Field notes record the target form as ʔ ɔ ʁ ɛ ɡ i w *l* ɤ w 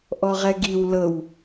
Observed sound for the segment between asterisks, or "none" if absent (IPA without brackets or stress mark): l